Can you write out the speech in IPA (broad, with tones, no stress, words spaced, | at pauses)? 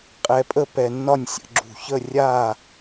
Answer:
qʼɛ˧pʼə˥˧pɛ˧nːɒ˥˧nʲ sʲə̰˩˧ɡ͡ǁṳ˧˩çə˥˧ rʲa˥˧